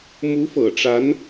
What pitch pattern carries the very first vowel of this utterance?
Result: rising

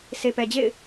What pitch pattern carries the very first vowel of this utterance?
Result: low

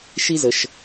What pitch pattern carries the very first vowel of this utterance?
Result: high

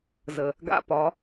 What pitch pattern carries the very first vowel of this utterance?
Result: low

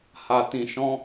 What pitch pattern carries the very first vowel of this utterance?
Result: low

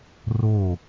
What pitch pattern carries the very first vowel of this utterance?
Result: falling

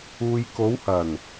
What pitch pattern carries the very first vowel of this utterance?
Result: low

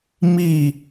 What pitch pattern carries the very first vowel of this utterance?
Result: falling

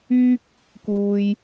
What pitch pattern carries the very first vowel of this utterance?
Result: high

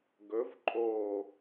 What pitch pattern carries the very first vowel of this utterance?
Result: rising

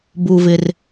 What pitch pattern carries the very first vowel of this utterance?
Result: low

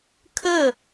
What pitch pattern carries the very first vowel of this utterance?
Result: falling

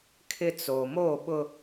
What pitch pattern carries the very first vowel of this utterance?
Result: high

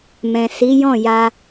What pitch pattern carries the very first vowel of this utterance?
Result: low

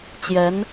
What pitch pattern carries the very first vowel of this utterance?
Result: rising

